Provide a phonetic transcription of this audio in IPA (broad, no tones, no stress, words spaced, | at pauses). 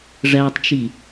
ʐætˤt͡ʃi